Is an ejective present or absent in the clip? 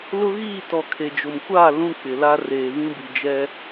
absent